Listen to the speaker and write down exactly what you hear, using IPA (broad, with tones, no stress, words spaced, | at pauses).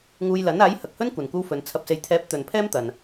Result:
ŋuː˧jlɐ˨˥n aː˨˥jhɐ˨k̚hɵ˥n kʷɐ˨nkʷɐ˥wfɵ˨˧n t͡sʰɐ˨p̚se˨jt̪ʰɛː˨˥p̚ t̪ɵ˨npʰɛː˥m t̪ɐ˨n